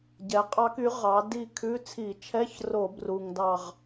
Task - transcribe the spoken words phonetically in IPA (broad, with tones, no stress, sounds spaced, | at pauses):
ɟ ɛ˨˥ qʼ ɑ˦˥ k y˨˥ ʁ ɑ˨˥ d i˦˨ kʰ ʉ˧˥˧ t͡sʰ i˧˩˧ t͡ʃʰ ɛ˧˥˧ ç r o˧˩˧ b r u˨˩ ŋ d ɑ˦˨ ʁ